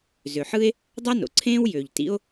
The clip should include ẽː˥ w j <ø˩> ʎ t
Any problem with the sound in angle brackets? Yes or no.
no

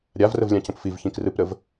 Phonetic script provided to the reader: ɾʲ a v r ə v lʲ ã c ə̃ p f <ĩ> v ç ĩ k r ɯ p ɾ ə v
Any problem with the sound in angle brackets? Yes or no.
yes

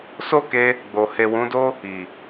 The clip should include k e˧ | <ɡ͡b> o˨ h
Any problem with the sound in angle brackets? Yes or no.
no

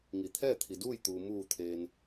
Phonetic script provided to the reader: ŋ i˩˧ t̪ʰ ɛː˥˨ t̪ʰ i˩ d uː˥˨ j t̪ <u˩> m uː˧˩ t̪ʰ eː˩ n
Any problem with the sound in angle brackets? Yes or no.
no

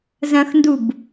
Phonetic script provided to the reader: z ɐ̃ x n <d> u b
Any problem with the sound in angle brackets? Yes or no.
no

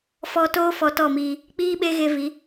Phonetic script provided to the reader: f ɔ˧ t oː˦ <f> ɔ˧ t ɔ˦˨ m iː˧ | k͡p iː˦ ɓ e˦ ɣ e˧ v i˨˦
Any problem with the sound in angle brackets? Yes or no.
no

